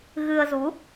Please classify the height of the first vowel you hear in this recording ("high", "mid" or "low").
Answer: high